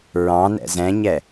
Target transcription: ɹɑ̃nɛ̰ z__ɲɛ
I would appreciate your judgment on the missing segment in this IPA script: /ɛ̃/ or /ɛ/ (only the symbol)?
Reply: ɛ̃